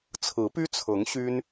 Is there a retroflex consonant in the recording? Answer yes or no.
no